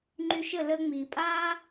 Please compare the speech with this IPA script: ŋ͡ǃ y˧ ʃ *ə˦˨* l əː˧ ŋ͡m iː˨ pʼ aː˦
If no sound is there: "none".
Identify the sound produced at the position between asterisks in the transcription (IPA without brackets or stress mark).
ə˦˨